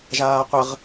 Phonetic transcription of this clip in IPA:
ʒ aː qʷ ə ʁ

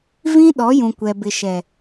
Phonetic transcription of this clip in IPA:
v ĩ˦ ɗ ɔ˨˦ j ũ˨ kʷ ɛ˨ b ɪ˨ ʃ ɛ˨

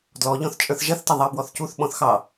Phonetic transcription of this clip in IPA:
d l ɔ ʎ ɔ̃ θ t͡ʃʼ ə˞ θ ʒ ɐ θ t ɐ ðˤ ɑ b w ɔ θ c u θ ɓ ɔ̃ θ x ɑ

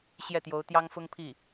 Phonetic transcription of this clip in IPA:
ɕ j ɛ˥˩ t̪ j o˧˥ ʊ̯ t̪ j ɑ˥ ŋ f ʊ˥ ŋ pʰ i˥˩

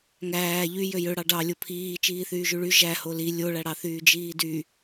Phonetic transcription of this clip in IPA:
ŋ æː ʎ y j ø j ø ɽ ɑ ɖ ɑ lʲ o pʰ iː t͡ʃ iː θ yː ʒ y ɭ y ʒ æ h o l i lʲ o ɭ æ ɽ ɑ θ yː d͡ʒ iː d y

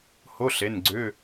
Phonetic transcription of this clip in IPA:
h o˧˥˧ ɬ e˩˧˩ n ɡ͡ǀ ʏ˧˥˧

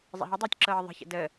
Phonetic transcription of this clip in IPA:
zˤ ə̰ ɦ ə dˤ ɤː tʲ ǁ ɤː ðˤ ə̤ ç ə̰ d ə

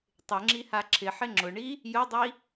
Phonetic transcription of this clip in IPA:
tˤ ɪ ŋ͡ǁ i h a ǁʰ ɪ ħ ɪ ŋ͡ǁ ʊ ɳ i | j ʊ dˤ i

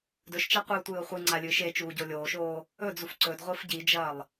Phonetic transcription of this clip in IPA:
d ɵ ʃ t͡ʃ a qʷ ɨː tʷ ɨː o̯ χʷ ɨ ŋ͡ǀ a lʲ ɨː ʃ e t͡ʃ uː ɟ o lʲ oː ʃ oː | ɵ d͡z u f ǀ ɵ d ʁʷ ɨː f ɟ i d͡ʒ ɐː lˠ

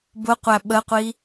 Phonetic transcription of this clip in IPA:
b ʊ qʷ æ ɓ ə qʷ i

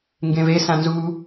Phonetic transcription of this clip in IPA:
ŋ ɡ ẽ v e s ã n z u

